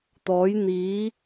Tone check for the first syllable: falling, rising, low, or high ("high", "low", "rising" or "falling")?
rising